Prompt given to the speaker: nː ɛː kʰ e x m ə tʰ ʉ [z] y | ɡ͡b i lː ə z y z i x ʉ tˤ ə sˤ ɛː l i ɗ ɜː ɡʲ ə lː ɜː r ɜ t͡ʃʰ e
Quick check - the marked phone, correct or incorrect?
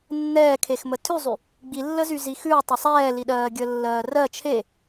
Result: incorrect